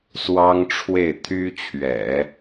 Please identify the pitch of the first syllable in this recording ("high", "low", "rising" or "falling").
high